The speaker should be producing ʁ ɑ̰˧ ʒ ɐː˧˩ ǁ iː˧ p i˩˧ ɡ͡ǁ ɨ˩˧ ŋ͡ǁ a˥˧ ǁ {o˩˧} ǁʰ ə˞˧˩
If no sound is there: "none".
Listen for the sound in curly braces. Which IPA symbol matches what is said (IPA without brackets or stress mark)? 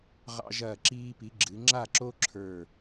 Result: o˥